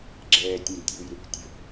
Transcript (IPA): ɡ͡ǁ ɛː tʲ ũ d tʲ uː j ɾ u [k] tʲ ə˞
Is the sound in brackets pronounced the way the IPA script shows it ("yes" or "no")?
yes